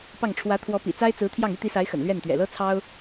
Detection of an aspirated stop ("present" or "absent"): present